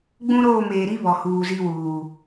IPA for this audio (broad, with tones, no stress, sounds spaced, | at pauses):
ɡ͡b ũ˦ ɾ oː˦˨ m eː˨ ɾ i˦ β ɔ˨ h uː˨ z i˦ w uː˨